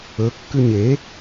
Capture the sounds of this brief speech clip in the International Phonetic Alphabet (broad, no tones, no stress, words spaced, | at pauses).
ɵ kːʉɲe